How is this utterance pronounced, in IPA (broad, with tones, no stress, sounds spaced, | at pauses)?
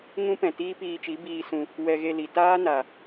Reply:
ŋ ũ˦ p ɛ̃˨ t iː˦ p iː˧ t͡ʃ i˨˦ b iː˧ s ũ˧ | w ɛ˧ ɣ e˧ l i˨ t aː˦ n a˨